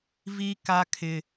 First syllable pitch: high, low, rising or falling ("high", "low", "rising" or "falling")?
high